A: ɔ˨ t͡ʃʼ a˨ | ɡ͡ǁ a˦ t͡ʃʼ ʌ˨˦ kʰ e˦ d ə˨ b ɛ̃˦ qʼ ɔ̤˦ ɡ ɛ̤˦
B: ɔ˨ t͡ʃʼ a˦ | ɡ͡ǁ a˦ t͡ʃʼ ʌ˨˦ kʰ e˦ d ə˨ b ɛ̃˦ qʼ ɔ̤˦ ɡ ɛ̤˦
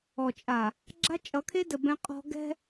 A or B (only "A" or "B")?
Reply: A